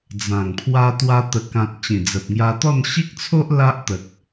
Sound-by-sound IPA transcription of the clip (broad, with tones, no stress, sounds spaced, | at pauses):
d͡z ã˨˩ ŋ pʰ w a˧ t̪ w a˧ t̪ ə˨˩ k ã˨ t̚ t͡ɕ ĩ˨˩ d͡z ə˨ p̚ ŋ j a˧ t̪ ɔ˥˧ n ɕ i˦ k̚ t͡sʰ o˦ ʔ l a˦ ʔ t̪ ə˨ k̚